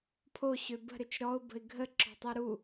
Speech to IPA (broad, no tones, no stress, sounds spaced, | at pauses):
pʰ o ɕ ø b ə̤ ɾ ø t͡ʃ ɾ ɔ ʊ̯ b ə̤ ɪ̯ ɡʱ ə ǁ ɔ̤ tˤ ø ɾ u